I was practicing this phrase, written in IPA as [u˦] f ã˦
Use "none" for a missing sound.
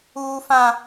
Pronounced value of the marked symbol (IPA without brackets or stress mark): uː˦